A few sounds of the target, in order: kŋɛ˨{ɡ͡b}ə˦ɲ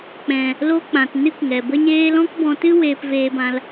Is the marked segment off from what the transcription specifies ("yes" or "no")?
yes